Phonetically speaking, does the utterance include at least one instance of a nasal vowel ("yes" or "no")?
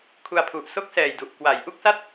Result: no